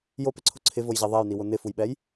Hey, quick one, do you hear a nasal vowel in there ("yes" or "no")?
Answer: no